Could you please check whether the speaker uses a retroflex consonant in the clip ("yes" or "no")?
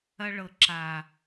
yes